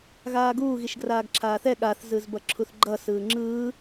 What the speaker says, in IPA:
ɣaːɡuː ɣiʃɡraːɡǁʰaːθɛ ɠaθzɯz bʌǁʰuθɡ͡ǃʌ sɯːŋ͡ǁɯː

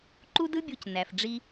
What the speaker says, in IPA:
ǃu˥dɯ˥bʲu˧c næ˩f ɖ͡ʐi˧

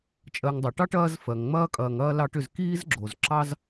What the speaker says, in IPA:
t͡ʃʼɜ˨ŋdˤɐ˩ʈɑ˥ʈ ɐː˦z fɜ˩ŋŋ͡mɐː˥kʼɐː˨ŋɐː˥ lɑ˦ʈʏ˨z kiː˦zɡ͡ǁo˩z ǁɑ˥z

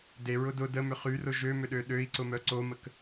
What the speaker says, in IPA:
deɹʊ dʊ dəmʏ χyrʊ ʒømʏɗø ɗøi̯ǀʊmœ ǀomək

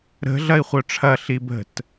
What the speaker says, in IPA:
ɾə̤ ɮɐi̯χʷœʈ͡ʂʰɐ ɬibə̤t

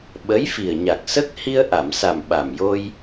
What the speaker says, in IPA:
ɓə˧˥jfi˨˩ə̯ɲa˨˩k̚sə˦˥k̚ hi˧ə̯ʔa˨˩˨msa˨˩m ɓa˨˩mjo˧j

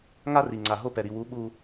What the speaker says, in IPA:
ŋa˦ri˨ŋ͡ǀa˨ ɦo˦pɛ˨ ɾi˨wu˨˦ ɓu˦

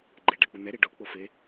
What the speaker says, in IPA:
ɡ͡ǃe ɖak͡pun̪ɛ ɾeɖo k͡pofe

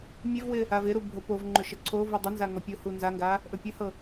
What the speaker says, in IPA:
mʲevwɪ | avɪɾu bʱopovŋ͡ǃɵ ʃəǀʰovu dˤənza ŋɔpʲohu nzaŋɡa | ʔɵpʲɵhɤ

